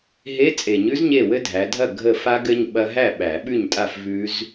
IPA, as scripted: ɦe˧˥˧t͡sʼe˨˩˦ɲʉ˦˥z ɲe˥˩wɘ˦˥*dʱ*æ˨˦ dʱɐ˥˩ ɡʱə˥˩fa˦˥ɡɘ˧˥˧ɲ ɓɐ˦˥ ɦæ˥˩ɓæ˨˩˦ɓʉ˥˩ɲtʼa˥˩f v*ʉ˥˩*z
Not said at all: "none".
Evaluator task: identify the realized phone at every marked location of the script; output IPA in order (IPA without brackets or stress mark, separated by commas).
dʱ, ʉ˦˥